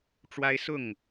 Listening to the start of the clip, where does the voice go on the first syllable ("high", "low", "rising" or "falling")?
high